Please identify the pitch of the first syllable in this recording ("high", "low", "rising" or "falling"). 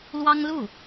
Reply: high